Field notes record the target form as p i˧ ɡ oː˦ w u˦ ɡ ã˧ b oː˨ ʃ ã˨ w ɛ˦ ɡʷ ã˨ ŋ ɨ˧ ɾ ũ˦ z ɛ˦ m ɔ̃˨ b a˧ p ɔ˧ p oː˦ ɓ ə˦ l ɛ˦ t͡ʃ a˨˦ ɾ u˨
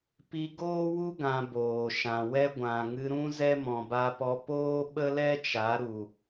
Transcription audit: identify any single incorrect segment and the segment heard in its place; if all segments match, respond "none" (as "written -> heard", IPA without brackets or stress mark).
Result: none